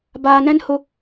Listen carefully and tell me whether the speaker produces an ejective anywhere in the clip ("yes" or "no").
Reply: no